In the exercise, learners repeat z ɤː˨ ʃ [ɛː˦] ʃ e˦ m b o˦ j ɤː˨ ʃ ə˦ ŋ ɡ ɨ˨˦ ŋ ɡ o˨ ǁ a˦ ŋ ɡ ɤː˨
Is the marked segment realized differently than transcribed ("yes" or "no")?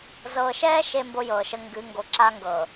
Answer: no